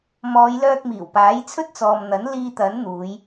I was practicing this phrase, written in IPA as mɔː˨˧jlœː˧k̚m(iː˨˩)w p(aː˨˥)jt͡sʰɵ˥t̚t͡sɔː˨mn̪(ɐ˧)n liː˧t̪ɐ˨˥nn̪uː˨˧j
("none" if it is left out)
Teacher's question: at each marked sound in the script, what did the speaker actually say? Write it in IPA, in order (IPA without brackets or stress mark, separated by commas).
iː˨˩, aː˨˥, ɐ˨˥